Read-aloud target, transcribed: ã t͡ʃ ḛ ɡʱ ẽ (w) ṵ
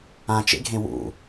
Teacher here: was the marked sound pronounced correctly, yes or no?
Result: yes